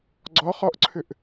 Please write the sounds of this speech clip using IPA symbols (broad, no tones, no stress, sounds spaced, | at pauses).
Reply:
ɡ͡ǀ ɔ χ ɔ ʔ ǀʰ ʏ ʔ